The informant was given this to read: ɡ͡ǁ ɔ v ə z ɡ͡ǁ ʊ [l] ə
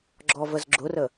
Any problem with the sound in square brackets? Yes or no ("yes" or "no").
yes